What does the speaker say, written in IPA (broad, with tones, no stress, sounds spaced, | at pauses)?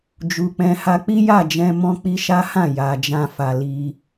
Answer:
d͡ʒ u˨ k͡p ɛ̃˧ h a˧ k͡p i˦ j a˦˨ d͡ʒ ɛ̃˧ m ɔ̃˧ k͡p i˧ ʃ a˦ h ã˦˨ j a˨ d͡ʒ ã˧ f a˨ l i˧